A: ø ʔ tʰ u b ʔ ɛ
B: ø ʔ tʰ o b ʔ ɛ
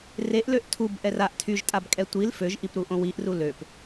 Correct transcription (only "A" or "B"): A